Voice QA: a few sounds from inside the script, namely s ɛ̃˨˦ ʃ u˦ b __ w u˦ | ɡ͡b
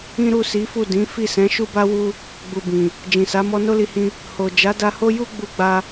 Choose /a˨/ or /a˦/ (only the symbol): a˦